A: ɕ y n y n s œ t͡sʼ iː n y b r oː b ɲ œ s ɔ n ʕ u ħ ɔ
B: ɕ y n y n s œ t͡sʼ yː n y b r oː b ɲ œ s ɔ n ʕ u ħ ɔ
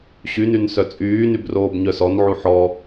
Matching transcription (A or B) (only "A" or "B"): B